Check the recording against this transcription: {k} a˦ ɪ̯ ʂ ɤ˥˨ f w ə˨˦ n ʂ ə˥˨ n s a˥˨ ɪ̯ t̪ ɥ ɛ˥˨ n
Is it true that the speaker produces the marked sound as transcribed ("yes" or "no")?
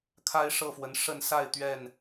no